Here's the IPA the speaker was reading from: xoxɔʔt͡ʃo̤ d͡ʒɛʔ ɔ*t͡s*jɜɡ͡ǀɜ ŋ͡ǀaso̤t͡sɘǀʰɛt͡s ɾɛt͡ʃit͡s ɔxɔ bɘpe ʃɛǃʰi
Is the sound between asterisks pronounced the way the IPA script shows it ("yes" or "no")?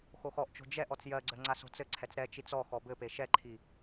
yes